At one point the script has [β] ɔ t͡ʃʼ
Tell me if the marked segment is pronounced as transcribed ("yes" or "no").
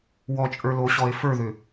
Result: no